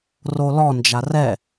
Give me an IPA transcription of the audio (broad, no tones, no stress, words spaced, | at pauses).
rolɔ nd͡ʒarɛ